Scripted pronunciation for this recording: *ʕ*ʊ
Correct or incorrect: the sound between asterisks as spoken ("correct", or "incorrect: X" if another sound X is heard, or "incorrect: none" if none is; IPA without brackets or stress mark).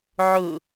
correct